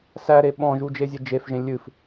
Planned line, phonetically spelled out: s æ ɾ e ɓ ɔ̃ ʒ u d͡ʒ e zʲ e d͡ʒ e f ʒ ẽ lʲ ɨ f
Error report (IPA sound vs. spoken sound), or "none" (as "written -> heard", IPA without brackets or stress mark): none